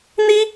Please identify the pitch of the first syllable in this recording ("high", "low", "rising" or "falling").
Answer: high